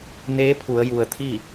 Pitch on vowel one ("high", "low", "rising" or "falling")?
rising